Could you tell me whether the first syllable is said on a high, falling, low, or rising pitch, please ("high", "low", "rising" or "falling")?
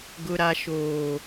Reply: low